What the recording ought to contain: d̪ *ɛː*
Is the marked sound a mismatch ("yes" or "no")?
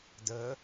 yes